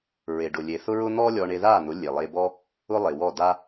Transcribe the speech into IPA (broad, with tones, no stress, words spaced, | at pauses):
ɹe˨ɖʊ˨lʲe˨θʊ˦ ɹʊ˦ n̪ɔ˦ lʲɔ˧ɳe˧ða˦˨n̪ʊ˨˦ lʲe˨lˠe˧bɔ˦ | ʊ˦lˠe˨wɔ˦˨ da˦